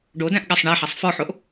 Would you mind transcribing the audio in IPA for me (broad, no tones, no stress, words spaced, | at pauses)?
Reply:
ɖodæ̃ʔɠasˤ ɳæħasˤ fɔħoʔ